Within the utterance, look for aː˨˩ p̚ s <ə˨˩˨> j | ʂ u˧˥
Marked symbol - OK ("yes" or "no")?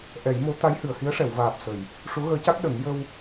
yes